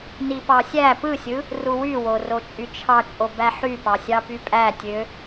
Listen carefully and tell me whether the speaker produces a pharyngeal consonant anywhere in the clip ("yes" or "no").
yes